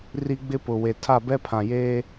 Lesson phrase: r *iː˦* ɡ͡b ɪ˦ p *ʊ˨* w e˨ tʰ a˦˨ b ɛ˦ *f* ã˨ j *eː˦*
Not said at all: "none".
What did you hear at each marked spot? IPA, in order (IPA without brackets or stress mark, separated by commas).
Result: i˦, ʊ˨, pʰ, eː˦